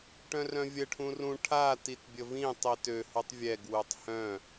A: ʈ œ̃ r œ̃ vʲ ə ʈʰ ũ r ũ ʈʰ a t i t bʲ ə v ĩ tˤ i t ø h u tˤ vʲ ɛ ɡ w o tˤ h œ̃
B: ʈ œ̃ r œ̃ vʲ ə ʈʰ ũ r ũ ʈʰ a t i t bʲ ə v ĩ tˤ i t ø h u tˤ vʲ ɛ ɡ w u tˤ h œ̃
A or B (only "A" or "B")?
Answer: B